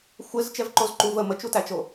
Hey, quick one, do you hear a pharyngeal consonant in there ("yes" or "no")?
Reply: no